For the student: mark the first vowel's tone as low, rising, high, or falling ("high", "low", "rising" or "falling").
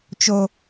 high